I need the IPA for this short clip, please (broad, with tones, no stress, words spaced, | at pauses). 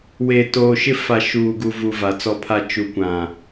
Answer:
weː˨toː˨ʃɪ˦˨ fa˨ ʃuː˨ɡu˨ vu˨ va˨t͡sɔ˦pʰa˦ t͡ʃu˨kʷã˨